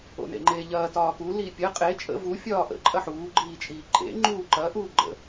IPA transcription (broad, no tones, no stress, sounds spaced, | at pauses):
o̰ n ḛ ŋ͡ǃ eː ʎ ɐː t ɒː k u l i pʲ ə qʼ e t͡ʃʼ ə̰ v u fʲ ɒː ʔ ə̰ ǃʼ ɐ ħ uː ɡ͡ǃ iː t͡ʃʼ iː ǃʼ ḛ ŋ͡ǃ uː ǃ ɐ ʔ uː ɡ͡ǃ ə̰